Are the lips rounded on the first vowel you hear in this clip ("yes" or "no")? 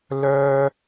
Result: yes